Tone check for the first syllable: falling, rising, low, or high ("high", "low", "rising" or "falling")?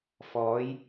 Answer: rising